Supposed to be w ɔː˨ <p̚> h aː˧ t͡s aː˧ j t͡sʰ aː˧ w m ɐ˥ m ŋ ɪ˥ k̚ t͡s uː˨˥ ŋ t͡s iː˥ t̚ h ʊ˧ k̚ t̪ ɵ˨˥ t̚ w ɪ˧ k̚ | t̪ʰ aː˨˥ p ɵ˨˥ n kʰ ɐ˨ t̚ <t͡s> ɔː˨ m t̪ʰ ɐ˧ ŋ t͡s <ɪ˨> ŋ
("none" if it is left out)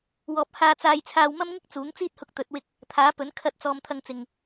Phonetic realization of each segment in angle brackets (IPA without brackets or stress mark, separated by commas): p̚, t͡s, ɪ˨